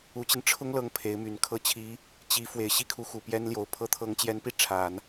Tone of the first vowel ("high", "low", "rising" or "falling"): rising